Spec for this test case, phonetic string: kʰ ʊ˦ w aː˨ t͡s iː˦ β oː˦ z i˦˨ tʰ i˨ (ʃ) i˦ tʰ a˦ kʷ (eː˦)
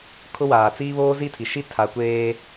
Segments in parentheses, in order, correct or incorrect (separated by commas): correct, correct